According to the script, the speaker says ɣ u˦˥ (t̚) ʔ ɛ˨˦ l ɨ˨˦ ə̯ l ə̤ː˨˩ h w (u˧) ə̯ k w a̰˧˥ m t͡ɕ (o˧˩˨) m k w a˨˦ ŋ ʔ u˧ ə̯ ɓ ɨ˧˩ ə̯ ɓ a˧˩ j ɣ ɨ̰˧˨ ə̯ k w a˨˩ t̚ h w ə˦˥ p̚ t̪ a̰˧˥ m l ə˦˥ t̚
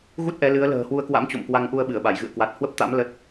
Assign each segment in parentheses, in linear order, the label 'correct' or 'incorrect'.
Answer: correct, correct, incorrect: o̰˧˨

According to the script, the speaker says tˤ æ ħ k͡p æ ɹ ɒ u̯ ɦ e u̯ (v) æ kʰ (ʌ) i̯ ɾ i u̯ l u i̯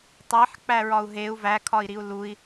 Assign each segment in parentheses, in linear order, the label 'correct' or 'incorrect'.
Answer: correct, incorrect: ɒ

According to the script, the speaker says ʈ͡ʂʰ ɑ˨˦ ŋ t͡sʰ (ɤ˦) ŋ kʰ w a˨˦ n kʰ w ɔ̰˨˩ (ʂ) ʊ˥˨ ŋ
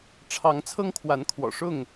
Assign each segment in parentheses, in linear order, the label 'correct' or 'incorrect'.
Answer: correct, correct

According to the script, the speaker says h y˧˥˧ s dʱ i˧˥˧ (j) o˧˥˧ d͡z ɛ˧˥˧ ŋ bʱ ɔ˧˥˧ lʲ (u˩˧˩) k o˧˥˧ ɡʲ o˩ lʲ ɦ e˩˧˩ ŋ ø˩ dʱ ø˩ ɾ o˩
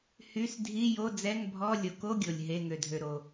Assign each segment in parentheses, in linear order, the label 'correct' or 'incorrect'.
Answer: correct, incorrect: o˩˧˩

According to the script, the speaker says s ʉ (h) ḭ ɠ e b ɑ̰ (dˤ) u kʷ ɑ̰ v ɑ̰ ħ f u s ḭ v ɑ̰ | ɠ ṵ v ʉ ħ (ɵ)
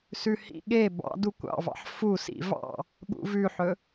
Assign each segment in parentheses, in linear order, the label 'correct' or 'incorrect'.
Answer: correct, incorrect: d, correct

